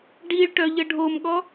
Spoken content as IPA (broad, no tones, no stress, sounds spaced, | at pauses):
ɖ i ɭ ʈ œ ʎ ə ɖʱ o m ɠ ɔ